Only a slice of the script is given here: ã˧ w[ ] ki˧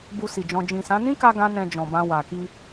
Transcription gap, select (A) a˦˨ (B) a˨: B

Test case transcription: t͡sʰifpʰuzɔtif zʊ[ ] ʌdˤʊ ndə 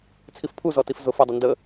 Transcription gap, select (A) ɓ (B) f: B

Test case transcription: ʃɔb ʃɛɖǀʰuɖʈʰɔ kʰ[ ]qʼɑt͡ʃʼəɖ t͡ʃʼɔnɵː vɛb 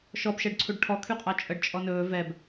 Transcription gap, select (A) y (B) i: A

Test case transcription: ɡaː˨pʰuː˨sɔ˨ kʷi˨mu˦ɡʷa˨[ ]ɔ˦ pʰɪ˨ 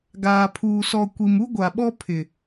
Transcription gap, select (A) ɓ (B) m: A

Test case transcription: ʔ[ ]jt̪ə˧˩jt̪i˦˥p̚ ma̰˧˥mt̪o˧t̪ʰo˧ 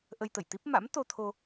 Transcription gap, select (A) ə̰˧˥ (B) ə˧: B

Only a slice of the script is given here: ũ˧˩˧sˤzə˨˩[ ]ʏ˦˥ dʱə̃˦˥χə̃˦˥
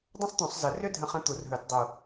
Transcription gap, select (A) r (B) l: A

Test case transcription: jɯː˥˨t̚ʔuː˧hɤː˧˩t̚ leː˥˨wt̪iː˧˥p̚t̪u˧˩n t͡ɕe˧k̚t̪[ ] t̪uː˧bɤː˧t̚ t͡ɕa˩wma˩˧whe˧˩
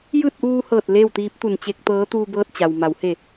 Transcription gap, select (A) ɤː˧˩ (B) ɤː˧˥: B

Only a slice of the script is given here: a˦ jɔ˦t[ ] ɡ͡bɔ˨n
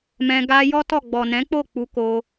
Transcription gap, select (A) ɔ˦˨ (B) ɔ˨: A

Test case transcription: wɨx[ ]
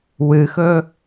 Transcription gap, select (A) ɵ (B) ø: A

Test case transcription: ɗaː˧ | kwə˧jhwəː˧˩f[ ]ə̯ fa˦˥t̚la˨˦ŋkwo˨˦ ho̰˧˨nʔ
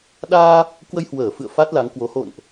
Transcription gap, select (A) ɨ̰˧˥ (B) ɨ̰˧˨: B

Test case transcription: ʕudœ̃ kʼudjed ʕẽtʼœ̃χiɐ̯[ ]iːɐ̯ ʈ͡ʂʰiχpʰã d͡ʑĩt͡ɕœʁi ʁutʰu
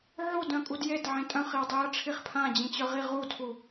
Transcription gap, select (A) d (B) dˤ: B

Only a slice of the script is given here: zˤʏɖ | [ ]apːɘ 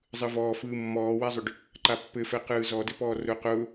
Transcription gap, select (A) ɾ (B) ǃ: B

